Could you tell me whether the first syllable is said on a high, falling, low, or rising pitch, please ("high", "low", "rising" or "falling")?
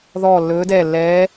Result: falling